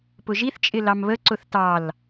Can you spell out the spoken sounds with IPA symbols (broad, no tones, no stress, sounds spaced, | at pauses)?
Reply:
p ʊ ʒ i θ t͡ʃʼ ɪ l ɑ m β ə ǀ ʊ θ t ɑ l